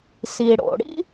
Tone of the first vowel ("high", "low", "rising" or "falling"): low